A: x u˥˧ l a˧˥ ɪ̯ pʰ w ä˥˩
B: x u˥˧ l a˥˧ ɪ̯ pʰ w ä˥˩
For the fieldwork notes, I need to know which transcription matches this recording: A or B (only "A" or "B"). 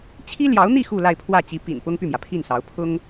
B